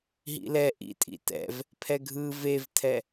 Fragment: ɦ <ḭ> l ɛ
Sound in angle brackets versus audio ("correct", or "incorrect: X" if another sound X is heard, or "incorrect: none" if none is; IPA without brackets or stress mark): correct